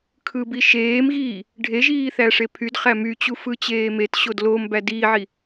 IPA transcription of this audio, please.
kʰ ɯ b i ʃ eː m ɣ iː | ɖʱ e ʒ iː θ æ ʂ e pʰ y d χ æ m y t͡ɕ u f ɯ t͡ɕ eː m e t ɕ o d l o m b æ d i ʕ i

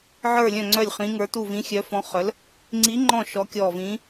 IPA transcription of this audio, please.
ʕ ə˞˦˨ lʲ œ̃˦˨ ŋ͡ǀ œ˦˨ lʲ χ ĩ˧˥ ŋ ə˞˧˥ t u˦˨ v ĩ˧˥ xʲ œ˧˥ f ɔ̃˧˥ χ œ˧˥ l | ŋ͡ǀ i˧˥ ŋ͡ǃ ɔ̃˦˨ ʃ ɔ˧˥ kʲ ɔː˦˨ v ĩː˧˥

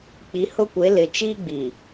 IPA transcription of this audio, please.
k͡p i˨˦ h ʊ˦ kʷ e˨˦ l ɪ˨ t͡ʃ i˦ ɡ͡b i˨

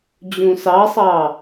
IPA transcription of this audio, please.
d͡ʑ ũ s ɑ sˤ ɑ

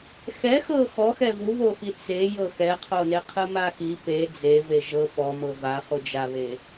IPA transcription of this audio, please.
x ɛ x ɤ x ɔ x ɛ v u β o x i t͡s e j ɤ x ɛ qʰ o n e qʰ ɯ m a x i p e d͡z e v e ʒ ɤ p ɔ m ɤ v a χ u d͡ʒ a β e

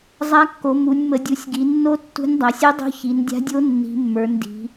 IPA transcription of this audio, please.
zˤ a˧˥ kː o˩˧ m u˩˧ nʲ m ə˩˧ dʲ u˩˧ sʲ ɡ i˩˧ nː o˧˥ tː ṳ˧˥ nʲ dˤ a˩˧ sʲ i˧˥ dˤ o̤˧˥ ç i˩˧ n dʲ a̤˧˥ dʲ o˧˥ nː i̤˩˧ mː ə˞˩˧ n d i̤˩˧

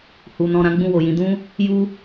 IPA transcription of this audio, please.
h u˨ n ɔ̃˧ ɾ ã˦ ɡ͡b ũ˦˨ w o˨ j ĩ˨˦ d ũ˦ | j u˦

